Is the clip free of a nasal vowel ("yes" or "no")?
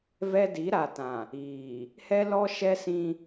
no